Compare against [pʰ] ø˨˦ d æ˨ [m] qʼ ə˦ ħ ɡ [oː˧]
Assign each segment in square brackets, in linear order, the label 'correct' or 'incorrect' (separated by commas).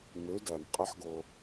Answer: incorrect, correct, incorrect